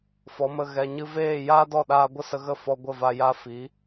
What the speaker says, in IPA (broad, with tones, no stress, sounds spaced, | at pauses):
f ɔ˨˦ m ə˧ ɣ ɛ˨ ɲ ɨ˧ v eː˦˨ j aː˦ d ɔ˦˨ ɗ aː˧ ɡʷ ə˦ s ə˧ ɣ ə˦˨ f ɔ˧ ɡʷ ə˦˨ v a˧ j a˦ f i˨˦